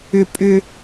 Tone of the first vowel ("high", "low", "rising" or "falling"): high